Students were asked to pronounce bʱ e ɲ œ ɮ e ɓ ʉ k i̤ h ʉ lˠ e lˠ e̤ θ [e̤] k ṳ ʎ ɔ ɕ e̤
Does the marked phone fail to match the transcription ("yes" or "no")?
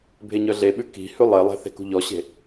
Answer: no